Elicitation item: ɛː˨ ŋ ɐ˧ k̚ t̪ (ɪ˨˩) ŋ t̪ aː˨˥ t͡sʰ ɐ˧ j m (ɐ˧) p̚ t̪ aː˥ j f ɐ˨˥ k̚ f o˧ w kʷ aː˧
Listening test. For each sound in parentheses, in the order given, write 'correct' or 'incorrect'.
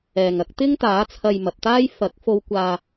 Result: incorrect, incorrect

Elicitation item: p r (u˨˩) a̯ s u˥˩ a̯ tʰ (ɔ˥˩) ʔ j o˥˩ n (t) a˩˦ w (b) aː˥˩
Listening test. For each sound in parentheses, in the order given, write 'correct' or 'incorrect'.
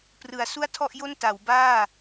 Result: incorrect, correct, correct, correct

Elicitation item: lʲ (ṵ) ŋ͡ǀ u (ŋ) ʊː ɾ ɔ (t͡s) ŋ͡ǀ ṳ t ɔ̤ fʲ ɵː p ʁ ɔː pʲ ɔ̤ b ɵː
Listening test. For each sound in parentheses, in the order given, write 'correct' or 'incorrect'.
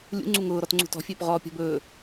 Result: correct, correct, incorrect

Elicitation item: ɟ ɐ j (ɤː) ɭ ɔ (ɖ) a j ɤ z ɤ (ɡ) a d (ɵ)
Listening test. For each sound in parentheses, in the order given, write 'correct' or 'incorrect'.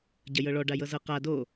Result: incorrect, correct, incorrect, incorrect

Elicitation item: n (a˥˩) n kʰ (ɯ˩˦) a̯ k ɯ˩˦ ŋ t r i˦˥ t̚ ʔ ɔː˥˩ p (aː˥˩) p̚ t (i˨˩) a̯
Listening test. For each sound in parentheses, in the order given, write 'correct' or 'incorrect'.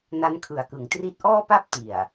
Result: incorrect, correct, incorrect, correct

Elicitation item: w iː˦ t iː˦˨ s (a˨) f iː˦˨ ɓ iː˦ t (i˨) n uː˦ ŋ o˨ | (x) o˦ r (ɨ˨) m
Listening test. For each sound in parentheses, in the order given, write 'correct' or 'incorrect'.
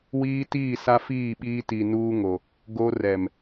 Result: incorrect, correct, incorrect, incorrect

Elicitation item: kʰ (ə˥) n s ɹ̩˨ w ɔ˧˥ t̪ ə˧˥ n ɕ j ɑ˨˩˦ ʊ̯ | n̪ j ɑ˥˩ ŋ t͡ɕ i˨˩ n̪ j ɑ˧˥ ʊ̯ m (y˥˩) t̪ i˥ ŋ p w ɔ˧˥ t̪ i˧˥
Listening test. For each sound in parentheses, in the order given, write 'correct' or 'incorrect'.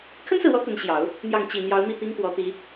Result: correct, incorrect

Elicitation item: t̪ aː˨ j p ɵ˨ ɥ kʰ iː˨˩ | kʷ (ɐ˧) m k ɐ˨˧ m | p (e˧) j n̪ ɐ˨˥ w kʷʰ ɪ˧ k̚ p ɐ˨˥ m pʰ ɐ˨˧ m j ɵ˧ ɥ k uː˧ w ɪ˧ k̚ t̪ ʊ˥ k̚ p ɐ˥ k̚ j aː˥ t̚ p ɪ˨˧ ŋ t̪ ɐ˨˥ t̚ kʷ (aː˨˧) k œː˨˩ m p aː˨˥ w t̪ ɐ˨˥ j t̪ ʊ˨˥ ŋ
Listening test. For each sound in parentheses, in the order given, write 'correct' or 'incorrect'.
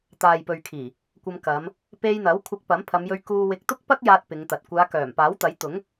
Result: correct, correct, correct

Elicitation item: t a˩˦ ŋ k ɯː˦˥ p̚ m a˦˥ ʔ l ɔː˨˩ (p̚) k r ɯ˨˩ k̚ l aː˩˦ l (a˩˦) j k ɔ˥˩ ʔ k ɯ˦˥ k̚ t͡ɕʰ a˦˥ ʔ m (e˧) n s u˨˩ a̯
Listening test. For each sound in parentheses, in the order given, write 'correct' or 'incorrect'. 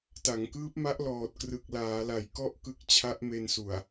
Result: incorrect, correct, correct

